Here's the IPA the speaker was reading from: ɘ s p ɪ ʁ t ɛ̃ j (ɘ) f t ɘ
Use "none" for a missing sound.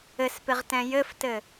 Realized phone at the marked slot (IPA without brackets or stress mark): ɘ